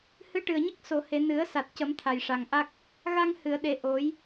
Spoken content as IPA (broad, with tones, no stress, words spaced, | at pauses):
hɨ˧˥ʈɨ˨˩ə̯ɲə˦˥k̚ so˨˩˨he˨˩˨ nɨ˨˩˦ə̯ sa˨˩t̚cə˨˩˦m t̪ʰa˨˩jʂa˨˩ŋʔa˦˥k̚ | ɣa˧ŋ hɨ˨˩˨ə̯ɗe˨˩ ʔo˨˩˦j